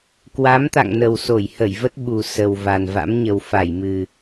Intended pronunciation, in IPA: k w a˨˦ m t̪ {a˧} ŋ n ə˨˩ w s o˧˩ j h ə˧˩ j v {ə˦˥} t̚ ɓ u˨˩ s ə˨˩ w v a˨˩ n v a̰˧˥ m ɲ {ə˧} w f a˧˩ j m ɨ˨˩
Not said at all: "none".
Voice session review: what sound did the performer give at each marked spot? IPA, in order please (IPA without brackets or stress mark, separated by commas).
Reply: a̰˧˨, ə˦˥, ə˨˩